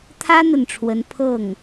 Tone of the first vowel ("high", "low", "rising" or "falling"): high